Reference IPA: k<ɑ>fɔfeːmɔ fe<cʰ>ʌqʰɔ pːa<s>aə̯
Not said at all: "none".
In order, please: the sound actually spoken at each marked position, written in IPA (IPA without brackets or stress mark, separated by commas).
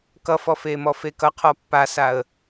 ʌ, k, s